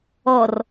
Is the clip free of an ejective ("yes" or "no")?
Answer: yes